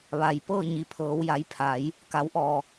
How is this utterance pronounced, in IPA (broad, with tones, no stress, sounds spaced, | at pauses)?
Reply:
ʋ a˩ j p ɤː˥˨ ɲ i˩ pʰ ɤː˩˧ w j a˩˧ j pʰ a˩˧ j | k a˩˧ w ʔ ɔː˩